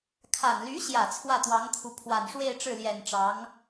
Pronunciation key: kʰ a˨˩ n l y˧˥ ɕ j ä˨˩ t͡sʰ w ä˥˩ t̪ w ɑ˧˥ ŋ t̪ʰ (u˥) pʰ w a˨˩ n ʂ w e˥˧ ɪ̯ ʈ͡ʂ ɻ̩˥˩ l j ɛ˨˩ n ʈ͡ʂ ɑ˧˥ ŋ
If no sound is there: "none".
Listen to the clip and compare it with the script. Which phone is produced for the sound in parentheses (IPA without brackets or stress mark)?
u˧˥